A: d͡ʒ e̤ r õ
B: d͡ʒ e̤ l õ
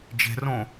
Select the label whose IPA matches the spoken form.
A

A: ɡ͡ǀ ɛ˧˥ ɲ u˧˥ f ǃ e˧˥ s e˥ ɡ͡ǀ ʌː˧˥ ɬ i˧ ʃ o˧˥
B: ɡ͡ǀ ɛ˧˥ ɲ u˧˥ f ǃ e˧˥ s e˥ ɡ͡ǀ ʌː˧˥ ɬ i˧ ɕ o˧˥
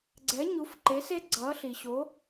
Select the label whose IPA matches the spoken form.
B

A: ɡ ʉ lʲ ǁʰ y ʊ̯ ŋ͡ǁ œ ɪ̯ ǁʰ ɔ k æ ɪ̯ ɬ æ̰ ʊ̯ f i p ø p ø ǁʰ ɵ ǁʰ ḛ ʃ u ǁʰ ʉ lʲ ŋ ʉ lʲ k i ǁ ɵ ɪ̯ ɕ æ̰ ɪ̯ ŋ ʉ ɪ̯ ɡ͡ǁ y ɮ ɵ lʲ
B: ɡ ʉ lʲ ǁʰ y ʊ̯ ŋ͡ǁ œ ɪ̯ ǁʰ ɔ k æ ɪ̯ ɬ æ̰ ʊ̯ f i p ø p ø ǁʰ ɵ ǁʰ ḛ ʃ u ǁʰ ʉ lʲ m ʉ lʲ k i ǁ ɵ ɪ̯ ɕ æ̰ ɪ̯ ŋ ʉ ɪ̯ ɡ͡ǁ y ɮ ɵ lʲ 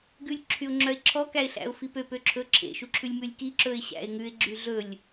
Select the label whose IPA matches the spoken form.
B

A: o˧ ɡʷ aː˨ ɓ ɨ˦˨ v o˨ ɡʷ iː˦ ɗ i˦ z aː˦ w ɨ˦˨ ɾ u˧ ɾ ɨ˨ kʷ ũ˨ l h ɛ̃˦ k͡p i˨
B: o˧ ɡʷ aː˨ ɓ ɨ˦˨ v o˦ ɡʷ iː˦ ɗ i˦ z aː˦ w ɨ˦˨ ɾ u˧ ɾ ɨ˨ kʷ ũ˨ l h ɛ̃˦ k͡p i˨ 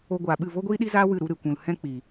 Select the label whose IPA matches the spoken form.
B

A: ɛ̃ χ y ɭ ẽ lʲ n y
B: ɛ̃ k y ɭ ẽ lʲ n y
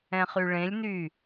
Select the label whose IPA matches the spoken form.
A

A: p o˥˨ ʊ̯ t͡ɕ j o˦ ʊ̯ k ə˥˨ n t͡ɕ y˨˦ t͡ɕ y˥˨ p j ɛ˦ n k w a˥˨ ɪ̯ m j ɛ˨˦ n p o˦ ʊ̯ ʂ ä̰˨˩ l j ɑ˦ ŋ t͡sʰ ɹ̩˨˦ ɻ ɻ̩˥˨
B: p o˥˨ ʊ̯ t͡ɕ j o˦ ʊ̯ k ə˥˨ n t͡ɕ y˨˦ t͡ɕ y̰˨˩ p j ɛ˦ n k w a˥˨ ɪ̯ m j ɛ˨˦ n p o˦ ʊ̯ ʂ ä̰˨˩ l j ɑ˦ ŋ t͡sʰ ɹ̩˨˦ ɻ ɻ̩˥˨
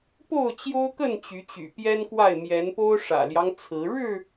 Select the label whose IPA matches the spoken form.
B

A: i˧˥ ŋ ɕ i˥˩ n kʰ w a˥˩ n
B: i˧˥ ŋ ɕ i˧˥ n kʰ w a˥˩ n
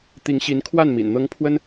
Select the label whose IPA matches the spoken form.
B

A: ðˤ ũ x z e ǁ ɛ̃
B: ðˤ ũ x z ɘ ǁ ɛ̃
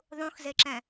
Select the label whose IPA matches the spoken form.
A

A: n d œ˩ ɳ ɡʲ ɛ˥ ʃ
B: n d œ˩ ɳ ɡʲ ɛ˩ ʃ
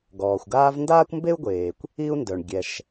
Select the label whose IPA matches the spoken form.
B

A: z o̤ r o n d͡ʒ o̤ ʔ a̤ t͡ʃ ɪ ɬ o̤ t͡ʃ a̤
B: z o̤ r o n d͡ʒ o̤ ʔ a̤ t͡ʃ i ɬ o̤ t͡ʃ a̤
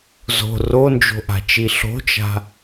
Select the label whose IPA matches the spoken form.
B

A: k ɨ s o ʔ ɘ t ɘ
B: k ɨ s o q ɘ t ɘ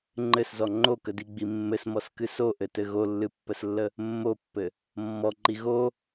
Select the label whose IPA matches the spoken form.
A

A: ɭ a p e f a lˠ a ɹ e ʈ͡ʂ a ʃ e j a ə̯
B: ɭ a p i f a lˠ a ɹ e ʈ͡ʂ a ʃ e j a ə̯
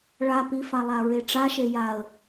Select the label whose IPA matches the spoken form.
B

